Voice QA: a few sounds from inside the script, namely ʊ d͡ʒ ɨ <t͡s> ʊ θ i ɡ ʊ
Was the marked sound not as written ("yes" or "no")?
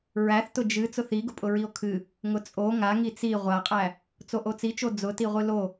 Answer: no